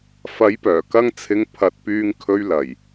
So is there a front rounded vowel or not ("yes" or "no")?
yes